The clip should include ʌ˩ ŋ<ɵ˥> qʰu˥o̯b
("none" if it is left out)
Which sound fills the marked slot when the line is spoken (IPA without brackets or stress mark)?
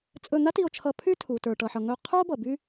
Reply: ɵ˧